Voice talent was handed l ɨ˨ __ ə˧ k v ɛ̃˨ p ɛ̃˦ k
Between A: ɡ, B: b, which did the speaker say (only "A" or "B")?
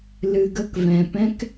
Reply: A